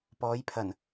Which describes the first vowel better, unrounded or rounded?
rounded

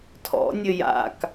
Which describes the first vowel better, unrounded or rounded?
rounded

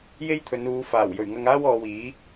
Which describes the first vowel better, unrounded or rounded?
unrounded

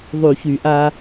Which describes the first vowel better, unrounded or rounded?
rounded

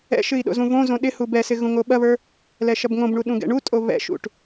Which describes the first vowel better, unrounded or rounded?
unrounded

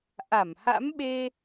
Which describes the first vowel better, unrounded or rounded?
unrounded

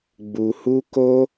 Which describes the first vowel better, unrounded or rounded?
rounded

